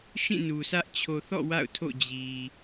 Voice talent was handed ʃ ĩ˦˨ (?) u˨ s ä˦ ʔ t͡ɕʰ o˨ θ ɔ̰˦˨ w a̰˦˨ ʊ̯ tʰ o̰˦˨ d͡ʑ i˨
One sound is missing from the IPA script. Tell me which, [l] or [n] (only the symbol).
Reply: n